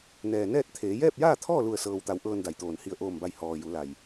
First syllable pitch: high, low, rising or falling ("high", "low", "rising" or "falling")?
low